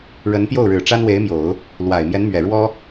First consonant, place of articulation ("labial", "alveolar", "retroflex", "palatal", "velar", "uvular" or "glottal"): retroflex